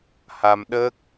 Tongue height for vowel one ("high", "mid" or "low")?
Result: low